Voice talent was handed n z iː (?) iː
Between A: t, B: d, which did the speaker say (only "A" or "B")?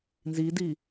B